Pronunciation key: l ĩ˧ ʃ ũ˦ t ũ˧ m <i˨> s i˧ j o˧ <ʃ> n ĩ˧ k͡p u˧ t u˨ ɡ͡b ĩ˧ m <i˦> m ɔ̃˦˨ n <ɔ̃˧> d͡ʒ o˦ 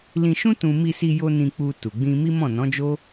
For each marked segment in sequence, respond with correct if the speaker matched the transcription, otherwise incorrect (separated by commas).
incorrect, incorrect, correct, incorrect